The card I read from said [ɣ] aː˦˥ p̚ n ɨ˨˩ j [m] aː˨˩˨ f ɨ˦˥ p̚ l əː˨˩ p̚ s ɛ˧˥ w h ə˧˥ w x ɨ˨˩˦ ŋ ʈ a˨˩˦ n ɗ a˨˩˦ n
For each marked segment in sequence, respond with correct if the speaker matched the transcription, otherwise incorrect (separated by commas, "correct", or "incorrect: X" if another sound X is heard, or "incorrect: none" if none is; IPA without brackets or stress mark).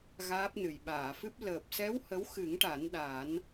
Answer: correct, incorrect: ɓ